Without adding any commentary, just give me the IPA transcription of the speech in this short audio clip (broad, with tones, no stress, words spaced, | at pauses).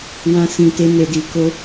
wã˦sĩ˧te˦ ne˧di˧ko˦